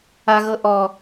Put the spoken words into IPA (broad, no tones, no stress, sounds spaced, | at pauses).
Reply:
a ɣ ɤ ʔ ɔ